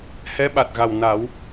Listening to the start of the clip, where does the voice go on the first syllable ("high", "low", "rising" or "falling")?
rising